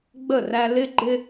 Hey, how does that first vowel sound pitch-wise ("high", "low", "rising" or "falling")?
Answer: falling